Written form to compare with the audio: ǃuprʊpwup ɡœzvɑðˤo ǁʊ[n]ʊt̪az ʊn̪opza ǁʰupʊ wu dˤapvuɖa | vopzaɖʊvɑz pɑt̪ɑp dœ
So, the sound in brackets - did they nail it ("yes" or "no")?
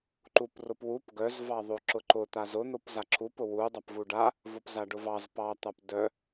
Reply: no